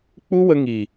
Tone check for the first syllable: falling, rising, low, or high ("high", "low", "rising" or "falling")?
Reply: high